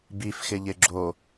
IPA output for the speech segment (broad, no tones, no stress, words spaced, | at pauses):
bifxɪ ʎɪɡ͡ǁo